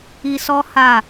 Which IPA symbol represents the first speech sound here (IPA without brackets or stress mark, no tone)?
i